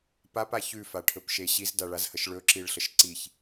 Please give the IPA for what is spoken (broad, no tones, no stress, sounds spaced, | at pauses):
p a p a ç ʉ f a ʈʰ ɵ p ʃ e ɕ i z d a ɭ a z h ə ʃ ɭ ɵ ǁ i ɭ ɬ ə ʃ ǀ i ç